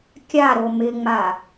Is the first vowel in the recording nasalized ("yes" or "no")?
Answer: no